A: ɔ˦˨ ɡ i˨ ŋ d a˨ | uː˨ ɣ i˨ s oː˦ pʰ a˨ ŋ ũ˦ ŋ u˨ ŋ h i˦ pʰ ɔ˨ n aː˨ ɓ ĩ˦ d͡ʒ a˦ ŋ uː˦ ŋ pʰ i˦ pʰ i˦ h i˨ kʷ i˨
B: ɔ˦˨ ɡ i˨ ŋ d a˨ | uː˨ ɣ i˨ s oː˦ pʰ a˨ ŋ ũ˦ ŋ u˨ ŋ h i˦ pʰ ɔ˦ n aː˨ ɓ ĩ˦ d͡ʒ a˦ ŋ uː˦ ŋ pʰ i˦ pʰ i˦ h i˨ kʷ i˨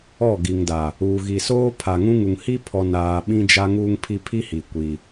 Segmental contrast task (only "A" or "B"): A